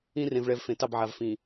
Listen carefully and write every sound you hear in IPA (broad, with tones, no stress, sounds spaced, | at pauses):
ĩ˦ r ẽ˨ v ɭ ɛ˨ v f ẽ˨ t ɑ˦˨ b ʕ a˨ v f ĩ˨